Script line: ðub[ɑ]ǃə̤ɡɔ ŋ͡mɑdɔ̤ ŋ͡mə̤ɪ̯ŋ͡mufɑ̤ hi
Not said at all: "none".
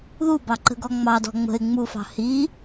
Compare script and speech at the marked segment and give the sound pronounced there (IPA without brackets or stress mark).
ɑ